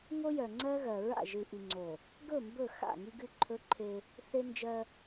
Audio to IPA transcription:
ŋo˦jœ˨ ŋ͡ǀɜ˦ɣɜ˨ ɹa̰˦˨ ʒɨ˨ʔi˨ŋ͡ǀo˨ | ɡɵ˦˨mbɵ˦˨ xa̰˦˨ ŋi˦ɡɨ˦ǃʰɵ˦ǃʰe˦ | θe˦nd͡ʒɜ˦

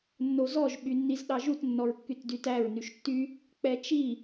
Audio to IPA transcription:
nːozɔʒ ɓynːizɗɑʒut nːɔɹkːytdytæɹ nyʃtːy | k͡pɛt͡ʃi

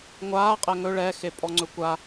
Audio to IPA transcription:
ŋʷaː qʼɛŋɵ ɭɛxe pʼɔŋ͡ǀɵkʷa

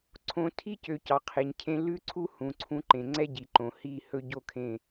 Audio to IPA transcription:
ǀʰõ˨tʰi˦cø˨ cɑ˨qʰe˨ɲcʰẽ˦ lʉ˦ǀʰu˦ hũ˨ǀʰũ˦ ǃẽ˨ŋ͡ǀɛ˦ɟi˨ǃõ˨ hi˦˨ hɵ˦ɟo˦kʰẽ˦˨

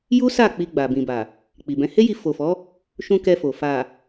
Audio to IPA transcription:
ju˦sa˦˨ k͡pi˧ɡ͡ba˨ bĩ˨ba˨ | k͡pi˨bɛ̃˨˦ he˦ji˧ fo˨fɔ˨˦ | ʃũ˧ kɛ˧fo˨ fa˨

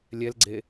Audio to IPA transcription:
lʲɛlɡ͡ǀe

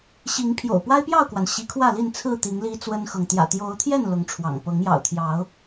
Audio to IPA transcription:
ɕi˨˦ŋpʰjo̰˨˩ʊ̯ pwa˦ɪ̯pjɑ˥˨ʊ̯kwa˩n ɕi˨˦kʰwä˥˨li˥˨n t͡sʰɹ̩˥˨t̪i˨˦ŋ li˦t͡swə˦nxɤ˨ŋ t̪jä̰˨˩t̪jo˨˦ʊ̯t̪ʰjɛ˥˨n lʊ˨˦ŋʈ͡ʂʰwɑ̰˨˩ŋ pɤ˨˦ŋjɑ̰˨˩ʊ̯t̪ʰjɑ˨˦ʊ̯

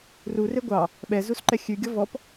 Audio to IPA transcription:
rure ɡʷɑ | ɓɛzusǃɛ xʲʉɡʲɔ vɔp

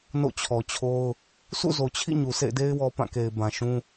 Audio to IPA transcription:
no̰˦˨t͡ɕʰɔ˨t͡ɕʰo˦ʊ̯ | sʰṵ˦˨zo˨t͡ɕʰḭ˦˨ ɲu˨sḛ˦˨ɪ̯de˦ɪ̯ wɔ˦pã˦˨ke˨ɪ̯ bã˨ʃũ˦

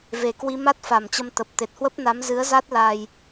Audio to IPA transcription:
ve˨˩kwi˧ ma˦˥t̚fa˨˩mt͡ɕə˧m t̪ə˨˩p̚ t̪e˨˩t̚hwə˦˥p̚na˨˦m zɨ˨˦ə̯za˦˥t̚ la˧j

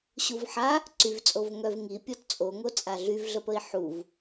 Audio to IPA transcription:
ɕuvħa | ǀyvt͡sʼov ŋœv ŋipʲɔt t͡sʼoŋo t͡sʼaɮyvɮəpəi̯ ħuv

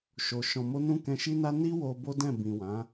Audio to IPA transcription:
ʃo˨ ʃɔ̃˨mo˧nũ˧ kɛ̃˧ʃi˦na˦ ni˦ wo˧ bo˦dɛ̃˦˨ bĩ˨wã˨˦

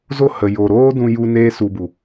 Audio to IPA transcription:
zo˦˨hə˨ jo˨ɾoː˦ dũ˧ju˧ neː˧su˨bu˨

